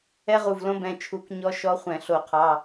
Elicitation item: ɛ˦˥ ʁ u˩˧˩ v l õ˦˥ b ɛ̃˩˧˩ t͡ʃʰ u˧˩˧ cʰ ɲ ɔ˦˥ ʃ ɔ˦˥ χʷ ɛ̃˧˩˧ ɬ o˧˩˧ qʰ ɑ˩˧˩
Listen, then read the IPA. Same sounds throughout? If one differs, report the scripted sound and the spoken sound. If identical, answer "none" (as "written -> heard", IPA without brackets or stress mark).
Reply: cʰ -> k